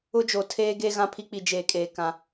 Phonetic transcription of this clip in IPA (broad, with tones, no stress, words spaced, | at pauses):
ʊ˦d͡ʒo˨ tʰeː˦ɡe˦ ɣã˦pʰi˦k͡pi˨ d͡ʒeː˨kʼeː˨ kã˨